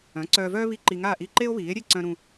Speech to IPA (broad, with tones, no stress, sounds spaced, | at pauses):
œ̃˩˥ ǀ œː˧ v œː˥ β i˥˩ ǃ i˧ ŋ aː˥˩ ʔ i˥˩ ǃ e˥ o̯ β iː˩˥ e̯ ɾʲ e˥˩ ǀ œ̃˧ ɾ ũ˧